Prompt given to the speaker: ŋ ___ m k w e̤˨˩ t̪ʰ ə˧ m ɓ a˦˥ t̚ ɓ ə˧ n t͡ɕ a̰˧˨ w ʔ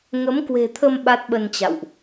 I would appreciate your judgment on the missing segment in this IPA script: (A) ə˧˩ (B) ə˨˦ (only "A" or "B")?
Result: B